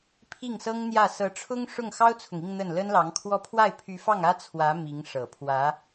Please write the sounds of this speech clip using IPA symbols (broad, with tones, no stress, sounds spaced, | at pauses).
pʰ i˥˩ ŋ s ɤ˥ ŋ n̪ j ä˥˩ s ɤ˧˥ ʈ͡ʂʰ ʊ˥ ŋ ʂ ʊ˥˩ ŋ x ɑ˥ ʊ̯ t͡sʰ ʊ˨ ŋ i˥˧ ŋ n̪ ə˥˩ n l ə˥ n l ɑ˧˥ ŋ kʰ w ɔ˥˧ pʰ w a˥˩ ɪ̯ pʰ y˧˥ f ɑ˥˩ ŋ ä˥ t͡sʰ w ä˧˥ m i˧˥ ŋ ʂ ɤ˨˩ pʰ w ä˧˥